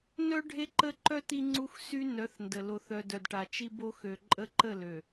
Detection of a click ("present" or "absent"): present